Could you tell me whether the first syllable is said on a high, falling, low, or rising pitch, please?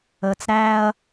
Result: low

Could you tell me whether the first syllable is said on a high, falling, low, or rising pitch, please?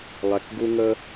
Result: low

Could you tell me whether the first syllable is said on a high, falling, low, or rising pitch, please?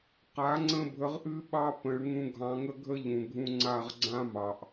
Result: rising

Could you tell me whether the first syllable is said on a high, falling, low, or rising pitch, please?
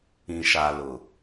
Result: low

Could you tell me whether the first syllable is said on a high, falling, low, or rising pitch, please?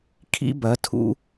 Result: high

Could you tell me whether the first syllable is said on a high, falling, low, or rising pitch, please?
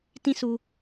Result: high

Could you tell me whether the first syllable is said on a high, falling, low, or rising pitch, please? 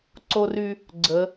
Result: high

